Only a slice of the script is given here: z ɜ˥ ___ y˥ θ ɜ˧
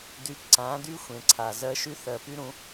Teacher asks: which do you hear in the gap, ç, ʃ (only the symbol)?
ʃ